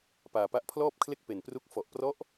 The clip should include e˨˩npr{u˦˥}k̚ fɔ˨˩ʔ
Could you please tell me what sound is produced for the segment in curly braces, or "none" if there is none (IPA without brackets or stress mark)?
u˦˥